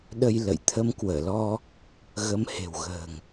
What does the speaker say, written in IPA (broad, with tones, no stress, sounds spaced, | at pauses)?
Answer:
ɗ ə˧ j l ə̰˧˨ j t̪ʰ ə˧ m k w əː˧˩ l ɔ˧ | ɣ ə˨˦ m h e̤˨˩ w ɣ ə̤ː˨˩ ŋ